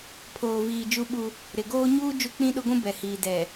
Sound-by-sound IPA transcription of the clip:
pʰoː˨viː˨ d͡ʒu˦ɓu˦ | ɾɪ˨ɡoː˦ ɲuː˦ d͡ʒu˦k͡pĩ˦ɗʊ˦ɡʷũ˦ bɛ˨hiː˨ dɛ˨

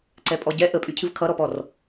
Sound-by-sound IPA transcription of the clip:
ǀɛpʼɔɟɛ ʔəpʼycʰɨv kʰʌɾɔpɔr

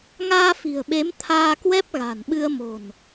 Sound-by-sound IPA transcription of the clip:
ŋaː˧fi̤˨˩ə̯ɓe˨˦m t̪ʰaː˧kwɛ˦˥p̚ɣa̤˨˩nɓɨ˧ə̯ mo̤˨˩n

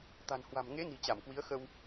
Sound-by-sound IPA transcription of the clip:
t̪a̤˨˩nhwa̤˨˩mŋe˨˦ ni̤˨˩t͡ɕa˧˩m kwi˨˦ə̯xə˧w

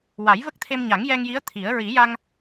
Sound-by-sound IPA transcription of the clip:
wa˨˩˦jvə˦˥k̚t̪ʰe˧mɲa˨˩˦ŋ jɛ˧ŋji˧˥ə̯ t̪ʰi˨˩˦ə̯ ɹi˨˩˦ja˧ŋ

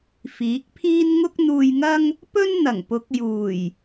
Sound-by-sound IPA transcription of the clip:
fiː˨˥k̚pʰiː˥n ŋʊ˥k̚n̪uː˧jŋɐ˥ŋ | pɵ˥n n̪ɐ˨˩ŋpʊ˨˥k̚ juː˨˩j

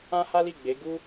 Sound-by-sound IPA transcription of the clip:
ã˦ha˦li˦˨ ɡ͡be˨˦ ɡu˦

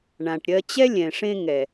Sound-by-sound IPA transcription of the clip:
ɳã˨ʈɾʲɜ˧ t͡ɕɛ˦lʲɛ̃˨ʂẽ˧ŋɛ˨

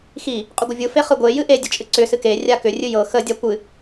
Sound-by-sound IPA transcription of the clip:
xi | qʼʏɡʷəvʲɯ feχɯɡʷe jɨʔe dʲət͡ʃʼɨǀʏ sɨke rʲakʏ rʲɨjɤ xə dʲakʷɨ

